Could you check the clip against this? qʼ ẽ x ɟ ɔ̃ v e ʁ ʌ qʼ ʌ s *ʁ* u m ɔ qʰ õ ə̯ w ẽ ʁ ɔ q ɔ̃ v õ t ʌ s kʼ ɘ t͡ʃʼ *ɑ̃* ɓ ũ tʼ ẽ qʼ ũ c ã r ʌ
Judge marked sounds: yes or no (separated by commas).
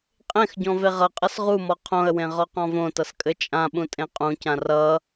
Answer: yes, no